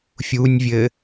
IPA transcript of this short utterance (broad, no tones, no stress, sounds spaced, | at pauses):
fʲ u nʲ vʲ ɘ